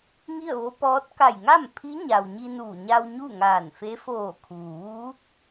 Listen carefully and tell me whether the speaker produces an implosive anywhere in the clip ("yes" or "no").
no